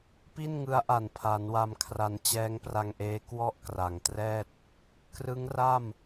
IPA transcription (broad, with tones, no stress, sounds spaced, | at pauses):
p i˥˩ n ŋ ɯ˦˥ a̯ ʔ a˨˩ n pʰ a˩˦ n w a˧ m kʰ r a˧ n t͡ɕ ɛː˦˥ ŋ p r a˧ ŋ ʔ eː˦˥ k w ɔ˥˩ ʔ k r a˨˩ ŋ t r ɛː˥˩ t̚ | k r ɯ˦˥ ŋ r a˥˩ m